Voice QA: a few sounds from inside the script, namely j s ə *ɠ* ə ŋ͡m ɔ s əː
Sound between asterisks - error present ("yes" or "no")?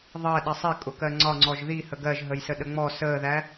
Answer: yes